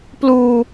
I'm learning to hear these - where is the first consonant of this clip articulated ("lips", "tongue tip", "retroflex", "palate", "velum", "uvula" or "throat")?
lips